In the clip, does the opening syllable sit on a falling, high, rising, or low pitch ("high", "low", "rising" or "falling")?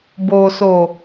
low